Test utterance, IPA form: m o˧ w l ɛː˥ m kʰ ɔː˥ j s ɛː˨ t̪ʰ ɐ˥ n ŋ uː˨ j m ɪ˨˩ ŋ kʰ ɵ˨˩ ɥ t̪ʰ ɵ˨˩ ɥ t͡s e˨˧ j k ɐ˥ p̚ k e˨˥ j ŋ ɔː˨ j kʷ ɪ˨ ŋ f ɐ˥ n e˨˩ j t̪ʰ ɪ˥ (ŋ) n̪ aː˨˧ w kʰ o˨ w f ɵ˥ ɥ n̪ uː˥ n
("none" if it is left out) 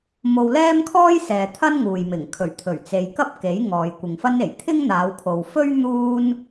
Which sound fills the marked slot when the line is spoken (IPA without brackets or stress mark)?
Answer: ŋ